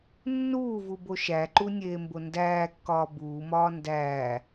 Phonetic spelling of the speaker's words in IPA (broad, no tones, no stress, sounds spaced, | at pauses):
nː uː v u b o ʃ æ ǃ u nʲ eː m b o n d æː kː ɒː b uː m ɒː n d æː